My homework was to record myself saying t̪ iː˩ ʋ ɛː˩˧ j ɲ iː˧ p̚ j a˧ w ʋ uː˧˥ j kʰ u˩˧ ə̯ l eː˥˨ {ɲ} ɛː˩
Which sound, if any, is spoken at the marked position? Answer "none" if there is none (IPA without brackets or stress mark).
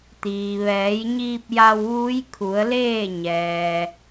ɲ